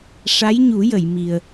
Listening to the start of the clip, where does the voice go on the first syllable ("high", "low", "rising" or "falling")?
rising